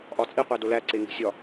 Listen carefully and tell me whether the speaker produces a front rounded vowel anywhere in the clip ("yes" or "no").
no